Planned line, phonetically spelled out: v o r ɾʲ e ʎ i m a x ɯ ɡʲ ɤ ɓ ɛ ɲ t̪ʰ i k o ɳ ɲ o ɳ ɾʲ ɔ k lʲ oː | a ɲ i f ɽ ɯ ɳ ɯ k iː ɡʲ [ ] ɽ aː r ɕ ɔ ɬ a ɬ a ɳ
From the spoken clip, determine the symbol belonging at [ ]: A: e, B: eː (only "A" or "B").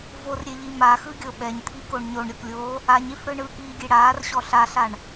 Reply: A